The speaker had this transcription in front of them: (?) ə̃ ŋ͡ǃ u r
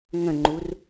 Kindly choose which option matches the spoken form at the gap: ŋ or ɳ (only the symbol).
ŋ